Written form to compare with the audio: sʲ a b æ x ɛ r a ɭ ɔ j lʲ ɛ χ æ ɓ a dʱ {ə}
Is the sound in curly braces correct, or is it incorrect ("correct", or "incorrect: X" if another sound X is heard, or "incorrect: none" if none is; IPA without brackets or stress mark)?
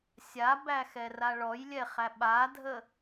correct